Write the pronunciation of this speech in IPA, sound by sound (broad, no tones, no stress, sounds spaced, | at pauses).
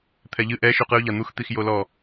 t̪ʰ ɛ ʎ ɨ ʔ ɛ ʃ u q ɨ ʊ̯ ʎ a n̪ u x t̪ i x j o l ɔ